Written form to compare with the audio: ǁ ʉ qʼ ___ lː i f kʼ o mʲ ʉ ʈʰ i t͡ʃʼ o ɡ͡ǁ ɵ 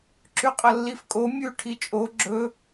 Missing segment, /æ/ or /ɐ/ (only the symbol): ɐ